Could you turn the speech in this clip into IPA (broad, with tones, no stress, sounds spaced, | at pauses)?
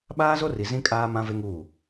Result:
ɓ aː˦ z o˦ r i˨ z ĩ˦ kʼ aː˦ m ã˦ v e˦ ŋ uː˦˨